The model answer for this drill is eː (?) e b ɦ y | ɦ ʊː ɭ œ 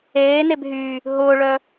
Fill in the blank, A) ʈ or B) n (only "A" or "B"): B